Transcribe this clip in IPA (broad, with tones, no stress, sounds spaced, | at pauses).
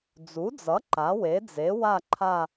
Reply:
d͡z u˩˥ d͡z ʌ˩˥ ǃ a˩˥ w e˩˥ d͡z e˩˥ w a˦˨ ǃʰ a˦˨